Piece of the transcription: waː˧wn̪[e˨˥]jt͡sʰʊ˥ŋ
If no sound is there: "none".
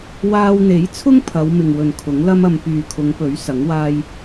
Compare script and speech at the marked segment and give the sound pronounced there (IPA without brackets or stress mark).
e˨˥